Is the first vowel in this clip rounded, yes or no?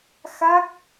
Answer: no